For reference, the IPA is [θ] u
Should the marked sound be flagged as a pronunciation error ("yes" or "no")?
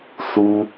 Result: no